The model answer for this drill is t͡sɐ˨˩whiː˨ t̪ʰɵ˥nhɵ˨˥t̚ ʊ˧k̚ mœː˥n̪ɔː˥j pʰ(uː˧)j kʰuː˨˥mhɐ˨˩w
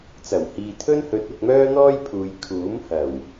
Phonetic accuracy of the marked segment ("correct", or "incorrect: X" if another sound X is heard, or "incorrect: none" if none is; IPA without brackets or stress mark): incorrect: uː˨˧